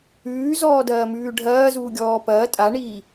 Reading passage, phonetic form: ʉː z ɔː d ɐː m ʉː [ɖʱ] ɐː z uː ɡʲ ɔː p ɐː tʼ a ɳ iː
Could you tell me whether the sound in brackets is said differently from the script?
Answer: no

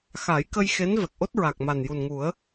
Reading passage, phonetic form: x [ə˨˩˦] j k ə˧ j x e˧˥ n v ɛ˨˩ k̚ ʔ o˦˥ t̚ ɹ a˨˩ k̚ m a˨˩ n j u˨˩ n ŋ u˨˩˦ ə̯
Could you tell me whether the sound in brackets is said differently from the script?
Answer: yes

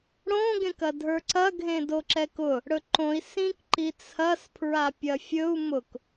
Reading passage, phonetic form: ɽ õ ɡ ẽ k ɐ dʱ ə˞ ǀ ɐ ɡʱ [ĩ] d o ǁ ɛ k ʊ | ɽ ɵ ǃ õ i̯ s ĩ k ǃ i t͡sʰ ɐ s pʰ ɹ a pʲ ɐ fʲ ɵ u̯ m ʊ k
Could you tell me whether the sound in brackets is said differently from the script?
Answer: yes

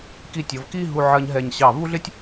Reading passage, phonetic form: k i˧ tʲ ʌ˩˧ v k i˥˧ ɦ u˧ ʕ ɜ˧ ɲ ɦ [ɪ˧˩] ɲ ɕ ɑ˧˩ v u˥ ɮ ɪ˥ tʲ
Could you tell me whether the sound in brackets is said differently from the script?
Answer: yes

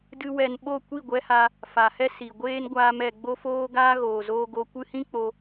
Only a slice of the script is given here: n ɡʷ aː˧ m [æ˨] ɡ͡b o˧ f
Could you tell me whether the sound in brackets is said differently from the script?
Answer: yes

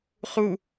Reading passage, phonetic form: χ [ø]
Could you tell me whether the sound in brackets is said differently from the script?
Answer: yes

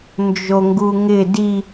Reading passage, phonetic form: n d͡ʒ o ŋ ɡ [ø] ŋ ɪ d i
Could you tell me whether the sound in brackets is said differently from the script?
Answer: yes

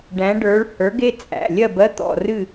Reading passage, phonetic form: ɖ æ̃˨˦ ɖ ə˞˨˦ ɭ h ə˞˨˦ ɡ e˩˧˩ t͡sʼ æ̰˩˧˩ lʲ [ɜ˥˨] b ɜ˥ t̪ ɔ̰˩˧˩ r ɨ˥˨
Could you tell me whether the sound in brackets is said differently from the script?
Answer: no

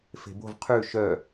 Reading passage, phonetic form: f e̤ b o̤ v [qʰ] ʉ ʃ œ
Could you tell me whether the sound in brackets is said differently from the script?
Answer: no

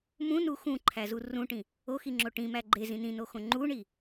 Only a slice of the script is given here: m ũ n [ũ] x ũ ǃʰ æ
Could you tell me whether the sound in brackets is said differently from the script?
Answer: yes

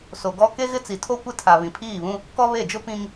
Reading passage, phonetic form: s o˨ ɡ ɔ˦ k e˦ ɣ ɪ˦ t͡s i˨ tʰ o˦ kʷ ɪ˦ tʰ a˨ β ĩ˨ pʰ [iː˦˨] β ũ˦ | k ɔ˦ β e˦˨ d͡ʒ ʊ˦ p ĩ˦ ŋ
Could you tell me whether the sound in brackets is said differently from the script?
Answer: no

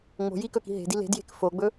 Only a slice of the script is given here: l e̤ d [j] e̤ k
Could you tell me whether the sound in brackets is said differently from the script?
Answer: no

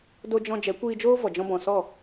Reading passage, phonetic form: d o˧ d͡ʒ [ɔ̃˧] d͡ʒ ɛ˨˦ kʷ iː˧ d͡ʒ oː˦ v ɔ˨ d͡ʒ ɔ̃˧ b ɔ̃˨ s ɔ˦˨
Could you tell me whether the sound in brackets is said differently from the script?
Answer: no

